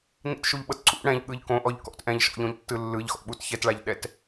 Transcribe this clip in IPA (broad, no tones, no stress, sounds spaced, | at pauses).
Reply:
n ḭ t ʃ u ʎ ɓ ɤ t ǀ ṵ ɽ ɛ̃ ʎ ɠ ɯ ʎ k õ ʔ ɔ ʎ k ɔ̰ t ʔ ɛ̃ ʎ ʃ ɔ̰ ʎ õ ʎ tː ɯ lː ɯ ʎ x ɔ̰ ɓ u t ç ɛ t ɭ a ʎ ɗ ɛ t